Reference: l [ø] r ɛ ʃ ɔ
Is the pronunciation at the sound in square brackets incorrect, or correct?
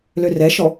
correct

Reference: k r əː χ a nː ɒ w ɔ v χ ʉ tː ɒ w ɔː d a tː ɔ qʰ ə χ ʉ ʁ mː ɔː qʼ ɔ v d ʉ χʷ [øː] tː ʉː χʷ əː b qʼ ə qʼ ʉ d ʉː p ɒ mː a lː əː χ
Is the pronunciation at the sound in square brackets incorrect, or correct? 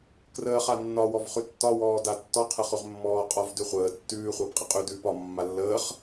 incorrect: əː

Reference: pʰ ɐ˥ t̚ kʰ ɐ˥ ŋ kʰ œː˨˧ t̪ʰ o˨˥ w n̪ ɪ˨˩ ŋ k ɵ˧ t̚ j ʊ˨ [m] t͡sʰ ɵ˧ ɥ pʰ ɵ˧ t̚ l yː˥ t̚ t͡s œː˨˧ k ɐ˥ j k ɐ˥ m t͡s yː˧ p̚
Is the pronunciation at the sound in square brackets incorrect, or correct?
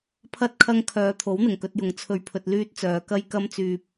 incorrect: ŋ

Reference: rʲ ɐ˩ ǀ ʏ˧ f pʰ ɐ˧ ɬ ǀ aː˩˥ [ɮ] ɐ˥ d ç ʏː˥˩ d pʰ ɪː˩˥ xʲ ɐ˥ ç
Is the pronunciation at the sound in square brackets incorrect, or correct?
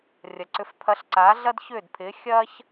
correct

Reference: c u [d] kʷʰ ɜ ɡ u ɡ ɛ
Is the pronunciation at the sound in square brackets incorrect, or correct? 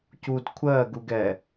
correct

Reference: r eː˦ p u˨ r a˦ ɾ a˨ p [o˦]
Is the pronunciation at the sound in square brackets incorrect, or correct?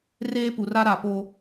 correct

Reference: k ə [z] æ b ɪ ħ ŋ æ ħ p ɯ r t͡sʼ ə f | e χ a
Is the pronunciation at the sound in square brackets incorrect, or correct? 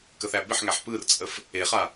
incorrect: θ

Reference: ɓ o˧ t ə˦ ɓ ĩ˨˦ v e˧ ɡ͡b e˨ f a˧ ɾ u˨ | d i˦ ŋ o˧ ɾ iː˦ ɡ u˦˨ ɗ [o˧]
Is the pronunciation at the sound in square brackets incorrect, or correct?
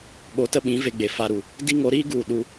incorrect: u˧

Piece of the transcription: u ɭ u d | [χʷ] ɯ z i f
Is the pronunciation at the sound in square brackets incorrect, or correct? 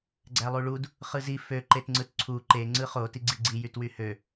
incorrect: χ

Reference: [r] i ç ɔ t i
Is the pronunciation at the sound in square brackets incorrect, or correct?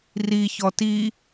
correct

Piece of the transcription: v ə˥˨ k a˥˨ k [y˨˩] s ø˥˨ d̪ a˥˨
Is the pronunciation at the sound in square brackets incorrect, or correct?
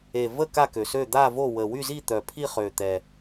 incorrect: ø˨˩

